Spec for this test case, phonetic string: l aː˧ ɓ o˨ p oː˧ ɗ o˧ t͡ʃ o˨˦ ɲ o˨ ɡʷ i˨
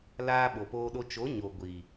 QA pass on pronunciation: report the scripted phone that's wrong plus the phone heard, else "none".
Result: none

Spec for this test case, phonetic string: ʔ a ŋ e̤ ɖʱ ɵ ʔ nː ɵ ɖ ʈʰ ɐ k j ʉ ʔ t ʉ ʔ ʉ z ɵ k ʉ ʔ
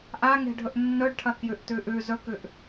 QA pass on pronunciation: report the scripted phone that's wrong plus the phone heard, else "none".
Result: none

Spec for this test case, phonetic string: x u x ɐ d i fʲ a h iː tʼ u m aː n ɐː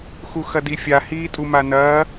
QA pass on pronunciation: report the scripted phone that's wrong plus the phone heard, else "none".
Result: aː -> a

